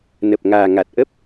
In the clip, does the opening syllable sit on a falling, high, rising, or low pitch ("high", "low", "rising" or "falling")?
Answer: low